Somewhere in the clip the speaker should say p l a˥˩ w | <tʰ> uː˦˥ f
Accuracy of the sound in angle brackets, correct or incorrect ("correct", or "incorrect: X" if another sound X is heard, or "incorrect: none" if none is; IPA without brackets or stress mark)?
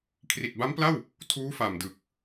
correct